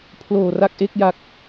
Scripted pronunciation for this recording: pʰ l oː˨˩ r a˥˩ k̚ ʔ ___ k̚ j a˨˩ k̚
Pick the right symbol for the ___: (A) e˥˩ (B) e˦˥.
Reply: A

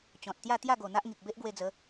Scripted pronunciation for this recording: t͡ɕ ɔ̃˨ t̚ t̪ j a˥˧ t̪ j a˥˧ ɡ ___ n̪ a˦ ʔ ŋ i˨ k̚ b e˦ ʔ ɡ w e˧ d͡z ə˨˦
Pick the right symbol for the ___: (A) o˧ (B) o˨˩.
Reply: B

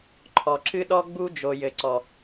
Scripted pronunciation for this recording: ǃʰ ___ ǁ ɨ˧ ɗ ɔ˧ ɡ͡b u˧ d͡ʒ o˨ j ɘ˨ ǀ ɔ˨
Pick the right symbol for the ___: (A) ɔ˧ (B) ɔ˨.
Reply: B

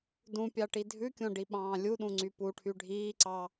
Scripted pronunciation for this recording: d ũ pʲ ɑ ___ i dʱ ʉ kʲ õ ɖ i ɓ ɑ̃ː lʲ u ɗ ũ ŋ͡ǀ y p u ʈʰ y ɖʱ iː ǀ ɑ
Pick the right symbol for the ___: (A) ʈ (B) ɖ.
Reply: A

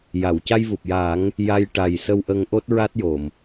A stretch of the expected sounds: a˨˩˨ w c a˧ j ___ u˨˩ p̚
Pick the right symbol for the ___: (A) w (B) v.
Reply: B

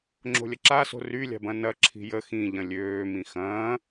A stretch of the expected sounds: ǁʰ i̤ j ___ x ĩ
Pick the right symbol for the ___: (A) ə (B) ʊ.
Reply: A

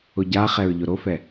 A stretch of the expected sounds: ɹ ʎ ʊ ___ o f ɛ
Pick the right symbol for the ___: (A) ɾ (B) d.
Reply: A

